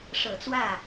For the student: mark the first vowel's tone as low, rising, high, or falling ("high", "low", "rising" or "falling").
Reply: low